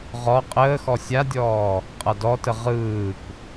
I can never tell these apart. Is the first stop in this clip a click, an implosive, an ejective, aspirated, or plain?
ejective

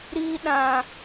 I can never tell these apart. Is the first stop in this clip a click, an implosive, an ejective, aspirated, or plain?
implosive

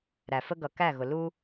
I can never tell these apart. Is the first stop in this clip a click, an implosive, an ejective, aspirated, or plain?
plain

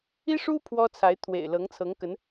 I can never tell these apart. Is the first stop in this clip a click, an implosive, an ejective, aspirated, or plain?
aspirated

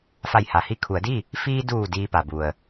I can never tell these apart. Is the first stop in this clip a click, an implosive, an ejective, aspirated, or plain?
aspirated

